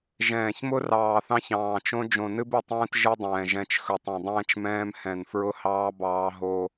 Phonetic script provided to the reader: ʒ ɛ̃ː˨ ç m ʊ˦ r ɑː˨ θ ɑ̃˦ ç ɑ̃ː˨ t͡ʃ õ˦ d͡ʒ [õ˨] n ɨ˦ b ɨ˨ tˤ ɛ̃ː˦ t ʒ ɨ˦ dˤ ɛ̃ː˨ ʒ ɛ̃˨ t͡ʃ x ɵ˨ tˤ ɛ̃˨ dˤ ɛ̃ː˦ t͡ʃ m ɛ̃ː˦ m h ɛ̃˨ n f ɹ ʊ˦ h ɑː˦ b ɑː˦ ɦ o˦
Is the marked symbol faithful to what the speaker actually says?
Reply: yes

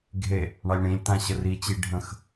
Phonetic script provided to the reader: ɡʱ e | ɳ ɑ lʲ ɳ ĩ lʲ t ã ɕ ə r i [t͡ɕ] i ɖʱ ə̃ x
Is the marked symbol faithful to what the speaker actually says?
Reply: yes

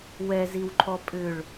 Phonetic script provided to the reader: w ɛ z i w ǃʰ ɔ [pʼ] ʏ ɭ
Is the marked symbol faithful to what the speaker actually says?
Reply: yes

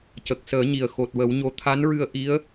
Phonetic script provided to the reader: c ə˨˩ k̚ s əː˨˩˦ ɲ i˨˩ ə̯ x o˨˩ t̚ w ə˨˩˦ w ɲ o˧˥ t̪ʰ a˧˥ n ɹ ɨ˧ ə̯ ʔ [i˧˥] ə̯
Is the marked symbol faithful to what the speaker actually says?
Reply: yes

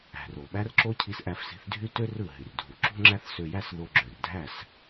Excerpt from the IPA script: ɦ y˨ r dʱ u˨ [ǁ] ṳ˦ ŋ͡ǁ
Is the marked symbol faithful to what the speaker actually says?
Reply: yes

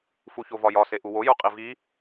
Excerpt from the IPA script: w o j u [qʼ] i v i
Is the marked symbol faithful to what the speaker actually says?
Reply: yes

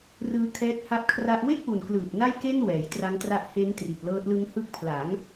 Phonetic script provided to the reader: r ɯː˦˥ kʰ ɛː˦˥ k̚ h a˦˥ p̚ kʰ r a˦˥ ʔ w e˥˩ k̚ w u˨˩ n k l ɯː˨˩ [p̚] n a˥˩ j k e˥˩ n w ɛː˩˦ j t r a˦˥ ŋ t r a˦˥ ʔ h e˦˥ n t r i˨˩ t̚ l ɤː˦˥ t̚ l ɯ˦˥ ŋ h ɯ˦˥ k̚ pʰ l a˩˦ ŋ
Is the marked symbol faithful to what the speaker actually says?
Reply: yes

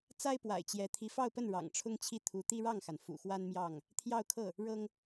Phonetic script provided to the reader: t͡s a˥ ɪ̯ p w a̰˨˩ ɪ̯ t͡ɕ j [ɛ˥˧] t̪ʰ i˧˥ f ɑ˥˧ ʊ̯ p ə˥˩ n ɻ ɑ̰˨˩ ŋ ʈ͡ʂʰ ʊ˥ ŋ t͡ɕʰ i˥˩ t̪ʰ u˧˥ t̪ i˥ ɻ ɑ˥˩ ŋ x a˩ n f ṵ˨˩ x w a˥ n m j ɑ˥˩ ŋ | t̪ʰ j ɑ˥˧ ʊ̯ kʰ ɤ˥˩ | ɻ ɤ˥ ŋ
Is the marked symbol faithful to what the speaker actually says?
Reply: no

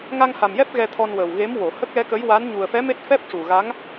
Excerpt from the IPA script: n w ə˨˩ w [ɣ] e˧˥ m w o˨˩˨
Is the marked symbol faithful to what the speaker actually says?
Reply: yes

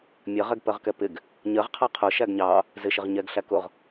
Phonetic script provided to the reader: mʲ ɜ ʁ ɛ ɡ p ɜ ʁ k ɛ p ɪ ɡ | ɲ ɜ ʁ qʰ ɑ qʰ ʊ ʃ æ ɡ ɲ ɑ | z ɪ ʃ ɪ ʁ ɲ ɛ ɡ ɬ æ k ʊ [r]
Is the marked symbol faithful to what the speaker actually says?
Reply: no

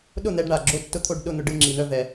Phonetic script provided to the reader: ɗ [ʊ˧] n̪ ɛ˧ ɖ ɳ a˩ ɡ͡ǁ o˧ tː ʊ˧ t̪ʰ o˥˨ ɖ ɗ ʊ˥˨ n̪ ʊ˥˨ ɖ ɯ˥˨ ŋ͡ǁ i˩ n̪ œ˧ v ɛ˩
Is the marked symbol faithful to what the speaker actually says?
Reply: no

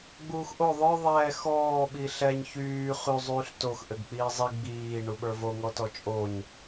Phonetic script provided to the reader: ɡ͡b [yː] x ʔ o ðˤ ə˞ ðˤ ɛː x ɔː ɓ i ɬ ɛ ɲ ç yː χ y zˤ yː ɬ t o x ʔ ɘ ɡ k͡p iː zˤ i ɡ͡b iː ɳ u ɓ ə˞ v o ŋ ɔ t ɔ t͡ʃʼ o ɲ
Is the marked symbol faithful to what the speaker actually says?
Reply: no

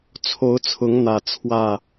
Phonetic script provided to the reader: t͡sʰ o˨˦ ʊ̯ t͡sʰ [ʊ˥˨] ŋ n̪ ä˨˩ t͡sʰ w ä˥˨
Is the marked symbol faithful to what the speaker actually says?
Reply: no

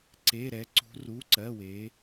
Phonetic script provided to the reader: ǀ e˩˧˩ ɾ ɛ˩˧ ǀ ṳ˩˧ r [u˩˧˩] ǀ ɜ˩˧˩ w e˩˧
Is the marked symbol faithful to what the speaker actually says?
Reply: yes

